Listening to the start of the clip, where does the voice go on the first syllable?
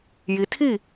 low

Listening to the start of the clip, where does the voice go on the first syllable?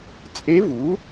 rising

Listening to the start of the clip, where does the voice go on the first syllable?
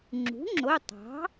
rising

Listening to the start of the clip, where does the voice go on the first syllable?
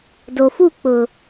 low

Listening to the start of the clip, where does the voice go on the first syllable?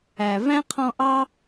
low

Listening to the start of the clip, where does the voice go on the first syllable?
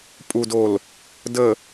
low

